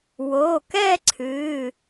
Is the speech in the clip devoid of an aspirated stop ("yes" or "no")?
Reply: no